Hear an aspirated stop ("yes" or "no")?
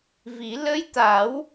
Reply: no